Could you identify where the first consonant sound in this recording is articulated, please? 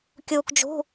velar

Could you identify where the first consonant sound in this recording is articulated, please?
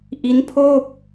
glottal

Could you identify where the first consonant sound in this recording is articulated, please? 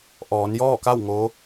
glottal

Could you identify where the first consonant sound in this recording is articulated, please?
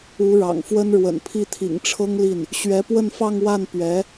retroflex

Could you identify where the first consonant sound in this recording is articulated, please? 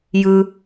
palatal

